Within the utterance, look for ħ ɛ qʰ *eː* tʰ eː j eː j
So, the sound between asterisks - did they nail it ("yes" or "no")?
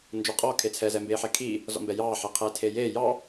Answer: no